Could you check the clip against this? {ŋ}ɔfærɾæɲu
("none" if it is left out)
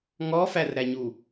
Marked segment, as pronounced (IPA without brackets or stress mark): ŋ